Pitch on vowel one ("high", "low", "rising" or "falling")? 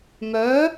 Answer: rising